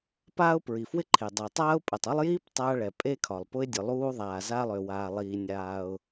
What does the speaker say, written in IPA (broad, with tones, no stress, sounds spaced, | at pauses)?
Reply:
p aː˥ ʊ̯ p ɹ i˩ f w ɪ˥ ǃʰ e˩ dˤ e˩ tˤ aː˥ ʊ̯ pʼ ə˩ tˤ ʊ˥ lˠ j iː˥ p tˤ aː˥ ɭ ɛ˩ pʼ e˥ kʰ ɒ˩ lˠ p ʊ˥ ɪ̯ dʲ ʊ˩ lˠ uː˥ ðˤ aː˩ z aː˥ lˠ ø˩ w aː˩ lˠ iː˩ nʲ aː˩ ʊ̯